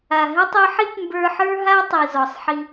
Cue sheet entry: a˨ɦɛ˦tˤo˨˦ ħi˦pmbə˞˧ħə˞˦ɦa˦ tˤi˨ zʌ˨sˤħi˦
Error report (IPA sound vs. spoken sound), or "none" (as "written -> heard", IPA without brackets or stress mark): ʌ˨ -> ɔ˨